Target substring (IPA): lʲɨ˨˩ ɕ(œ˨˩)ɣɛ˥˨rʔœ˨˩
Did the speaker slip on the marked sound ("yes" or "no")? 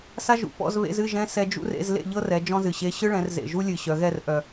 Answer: yes